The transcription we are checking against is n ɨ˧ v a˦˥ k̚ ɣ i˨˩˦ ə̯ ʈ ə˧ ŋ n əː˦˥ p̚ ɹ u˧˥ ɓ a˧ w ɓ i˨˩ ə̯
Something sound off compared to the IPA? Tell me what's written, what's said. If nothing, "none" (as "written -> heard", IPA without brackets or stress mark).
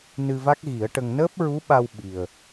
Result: none